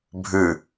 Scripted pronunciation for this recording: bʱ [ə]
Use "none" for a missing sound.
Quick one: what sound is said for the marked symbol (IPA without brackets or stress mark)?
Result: ʉ